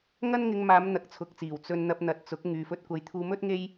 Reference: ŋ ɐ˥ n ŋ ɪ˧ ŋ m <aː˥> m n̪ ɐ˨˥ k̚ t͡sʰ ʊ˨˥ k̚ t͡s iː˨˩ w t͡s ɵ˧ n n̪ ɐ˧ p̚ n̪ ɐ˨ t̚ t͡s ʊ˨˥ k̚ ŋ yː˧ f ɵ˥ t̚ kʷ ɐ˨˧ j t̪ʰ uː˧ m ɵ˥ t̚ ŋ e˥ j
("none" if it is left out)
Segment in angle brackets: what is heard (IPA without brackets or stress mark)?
aː˨˧